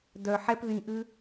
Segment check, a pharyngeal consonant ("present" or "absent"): present